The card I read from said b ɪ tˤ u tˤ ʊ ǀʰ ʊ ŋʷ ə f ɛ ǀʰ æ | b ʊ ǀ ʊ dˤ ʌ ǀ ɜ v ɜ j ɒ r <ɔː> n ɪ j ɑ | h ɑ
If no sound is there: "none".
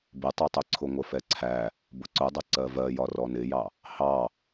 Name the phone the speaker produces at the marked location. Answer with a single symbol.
ɔ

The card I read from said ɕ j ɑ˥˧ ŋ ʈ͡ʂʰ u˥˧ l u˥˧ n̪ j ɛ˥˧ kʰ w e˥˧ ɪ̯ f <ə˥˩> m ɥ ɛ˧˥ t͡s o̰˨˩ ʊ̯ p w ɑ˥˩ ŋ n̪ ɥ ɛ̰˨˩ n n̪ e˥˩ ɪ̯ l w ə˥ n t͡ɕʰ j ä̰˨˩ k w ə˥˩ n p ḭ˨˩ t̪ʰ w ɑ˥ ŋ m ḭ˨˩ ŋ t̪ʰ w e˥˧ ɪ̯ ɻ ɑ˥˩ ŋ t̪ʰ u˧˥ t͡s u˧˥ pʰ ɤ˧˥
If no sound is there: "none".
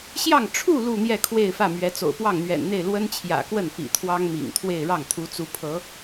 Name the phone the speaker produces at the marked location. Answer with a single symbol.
ä˥˩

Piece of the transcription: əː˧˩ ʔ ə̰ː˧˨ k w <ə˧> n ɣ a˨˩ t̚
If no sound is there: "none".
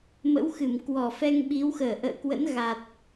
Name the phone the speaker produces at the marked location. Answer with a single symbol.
ə̰˧˥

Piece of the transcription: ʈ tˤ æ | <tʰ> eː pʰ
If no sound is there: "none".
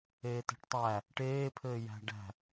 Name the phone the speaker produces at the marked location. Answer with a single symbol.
ʈ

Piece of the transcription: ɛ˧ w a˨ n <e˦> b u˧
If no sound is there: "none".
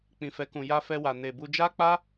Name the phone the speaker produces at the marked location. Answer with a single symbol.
e˨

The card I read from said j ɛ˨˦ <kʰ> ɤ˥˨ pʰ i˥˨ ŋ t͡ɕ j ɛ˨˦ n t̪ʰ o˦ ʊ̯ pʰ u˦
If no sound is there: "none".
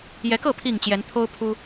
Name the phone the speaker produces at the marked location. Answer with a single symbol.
k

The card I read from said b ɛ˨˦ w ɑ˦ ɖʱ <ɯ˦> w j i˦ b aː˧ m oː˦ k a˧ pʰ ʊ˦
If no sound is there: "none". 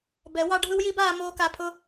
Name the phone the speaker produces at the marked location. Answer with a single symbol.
ɯ˦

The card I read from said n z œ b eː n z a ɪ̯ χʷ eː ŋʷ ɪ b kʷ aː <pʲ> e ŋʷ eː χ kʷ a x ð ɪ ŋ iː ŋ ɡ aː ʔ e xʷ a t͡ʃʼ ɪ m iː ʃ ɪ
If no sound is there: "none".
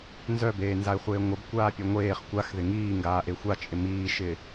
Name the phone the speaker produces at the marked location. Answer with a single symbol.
pʲ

